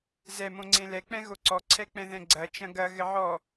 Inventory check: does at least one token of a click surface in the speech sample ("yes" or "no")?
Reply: yes